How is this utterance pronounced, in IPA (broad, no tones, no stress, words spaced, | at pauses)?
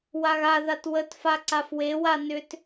waɣaðat wətfa ǀafwewa nʏt